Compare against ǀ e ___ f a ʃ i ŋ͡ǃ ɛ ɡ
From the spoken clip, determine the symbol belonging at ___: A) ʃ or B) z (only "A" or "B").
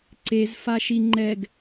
B